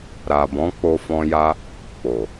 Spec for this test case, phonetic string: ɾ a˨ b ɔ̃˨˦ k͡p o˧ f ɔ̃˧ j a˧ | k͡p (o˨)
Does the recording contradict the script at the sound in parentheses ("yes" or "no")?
no